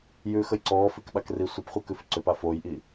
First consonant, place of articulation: palatal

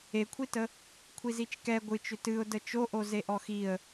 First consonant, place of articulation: velar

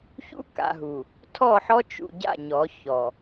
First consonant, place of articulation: palatal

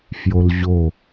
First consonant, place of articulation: labial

